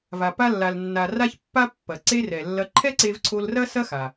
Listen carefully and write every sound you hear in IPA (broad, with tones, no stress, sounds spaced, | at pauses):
v a˩ p a˧ lː a˩ l nː a˩ r a˧ ç pː a˧ pː ɐ˩ ǀ e˧ r ɛ˩ lː ɐ˧ ǃʰ ɛ˥ ǀ e˧ v ǀʰ o˧ l r ɐ˥ s ɐ˥ x a˩